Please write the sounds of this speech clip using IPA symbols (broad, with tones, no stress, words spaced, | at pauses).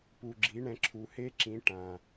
pu˩ɡ͡ǁi˩˧ɳɛ̃˩˧ ǁʰu˩he˧˥ ǁĩ˩˧ ʈã˩